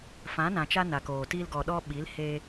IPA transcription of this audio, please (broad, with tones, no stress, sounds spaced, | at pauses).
f ã˨˦ n ã˨ t͡ʃ a˦ n a˨ k oː˨ t i˧ l ɡ ɔ˨ ɗ ɔ˧ ɓ i˨˦ l h e˧